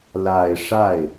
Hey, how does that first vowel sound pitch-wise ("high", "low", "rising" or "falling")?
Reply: low